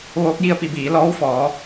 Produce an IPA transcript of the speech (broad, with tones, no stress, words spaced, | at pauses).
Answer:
ʋoː˧˥k̚ji˥˨ə̯pi˧biː˩˧ lɔː˧˥wfɔː˩˧